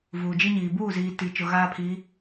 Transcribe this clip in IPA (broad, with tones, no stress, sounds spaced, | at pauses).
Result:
v uː˨ d͡ʒ i˦ ɲ iː˨ b uː˦˨ z iː˨ t i˨ t͡ʃ ʊ˨ ɣ aː˦ pʰ i˨˦